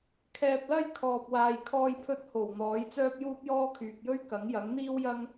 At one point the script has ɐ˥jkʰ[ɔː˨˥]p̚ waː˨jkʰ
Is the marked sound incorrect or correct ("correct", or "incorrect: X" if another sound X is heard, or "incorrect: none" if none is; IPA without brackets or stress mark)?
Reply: incorrect: ɔː˨